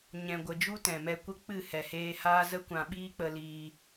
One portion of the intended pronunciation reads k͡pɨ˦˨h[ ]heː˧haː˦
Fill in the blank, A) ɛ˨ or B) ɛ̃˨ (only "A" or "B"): A